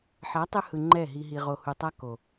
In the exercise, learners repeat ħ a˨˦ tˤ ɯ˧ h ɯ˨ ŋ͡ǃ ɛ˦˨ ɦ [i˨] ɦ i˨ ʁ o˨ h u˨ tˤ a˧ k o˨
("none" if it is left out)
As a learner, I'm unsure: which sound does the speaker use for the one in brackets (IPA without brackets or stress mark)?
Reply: i˨